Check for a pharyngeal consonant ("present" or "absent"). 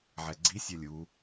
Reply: present